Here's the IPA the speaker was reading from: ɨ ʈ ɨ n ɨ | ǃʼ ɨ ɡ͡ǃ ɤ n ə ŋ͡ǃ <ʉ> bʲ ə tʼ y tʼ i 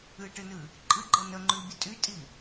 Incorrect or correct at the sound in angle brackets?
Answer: correct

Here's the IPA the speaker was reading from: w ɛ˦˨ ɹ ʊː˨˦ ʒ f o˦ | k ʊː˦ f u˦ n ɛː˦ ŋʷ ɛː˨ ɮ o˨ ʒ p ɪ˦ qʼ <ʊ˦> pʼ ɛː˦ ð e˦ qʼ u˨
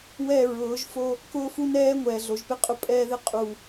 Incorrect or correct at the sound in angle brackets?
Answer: correct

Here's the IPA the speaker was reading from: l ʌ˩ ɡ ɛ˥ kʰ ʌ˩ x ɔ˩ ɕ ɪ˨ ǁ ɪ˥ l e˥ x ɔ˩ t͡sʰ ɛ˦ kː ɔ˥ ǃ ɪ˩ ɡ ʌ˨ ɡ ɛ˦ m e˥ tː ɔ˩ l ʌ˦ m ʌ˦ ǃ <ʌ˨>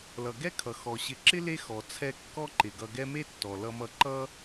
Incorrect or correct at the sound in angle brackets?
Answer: incorrect: ʌ˥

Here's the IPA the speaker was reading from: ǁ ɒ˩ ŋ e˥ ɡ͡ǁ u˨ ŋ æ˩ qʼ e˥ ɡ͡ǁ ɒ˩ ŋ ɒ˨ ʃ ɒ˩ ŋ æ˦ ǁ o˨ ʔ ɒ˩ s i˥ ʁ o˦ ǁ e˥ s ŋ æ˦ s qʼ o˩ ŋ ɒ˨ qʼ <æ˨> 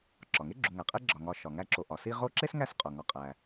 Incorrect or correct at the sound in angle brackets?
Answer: correct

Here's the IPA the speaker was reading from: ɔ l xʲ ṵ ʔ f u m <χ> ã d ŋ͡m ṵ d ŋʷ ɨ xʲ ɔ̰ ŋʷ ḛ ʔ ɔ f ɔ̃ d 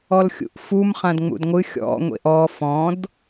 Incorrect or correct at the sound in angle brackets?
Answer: correct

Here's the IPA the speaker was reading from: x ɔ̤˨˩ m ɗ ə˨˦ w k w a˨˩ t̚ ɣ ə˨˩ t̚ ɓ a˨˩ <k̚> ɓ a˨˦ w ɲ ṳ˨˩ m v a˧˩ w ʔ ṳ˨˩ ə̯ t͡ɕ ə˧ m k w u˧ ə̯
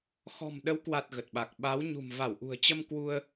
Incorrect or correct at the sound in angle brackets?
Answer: correct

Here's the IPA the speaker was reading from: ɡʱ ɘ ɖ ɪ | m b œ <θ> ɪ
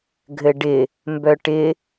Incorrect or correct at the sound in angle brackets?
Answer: incorrect: ʈ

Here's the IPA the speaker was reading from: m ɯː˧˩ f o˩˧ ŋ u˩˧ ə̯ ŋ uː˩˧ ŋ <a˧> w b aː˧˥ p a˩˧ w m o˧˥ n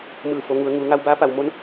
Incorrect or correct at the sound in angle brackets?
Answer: correct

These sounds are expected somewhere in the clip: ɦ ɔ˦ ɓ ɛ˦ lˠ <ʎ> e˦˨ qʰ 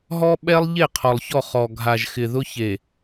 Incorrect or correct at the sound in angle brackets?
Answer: correct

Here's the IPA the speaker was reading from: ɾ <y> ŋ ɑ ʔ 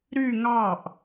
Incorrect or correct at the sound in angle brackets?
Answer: correct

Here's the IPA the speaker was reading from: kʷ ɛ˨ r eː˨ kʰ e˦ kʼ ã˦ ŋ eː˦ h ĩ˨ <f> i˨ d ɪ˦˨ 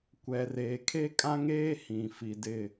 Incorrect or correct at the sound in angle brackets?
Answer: correct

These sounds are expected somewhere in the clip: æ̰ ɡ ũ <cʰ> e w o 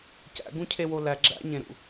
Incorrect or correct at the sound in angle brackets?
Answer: correct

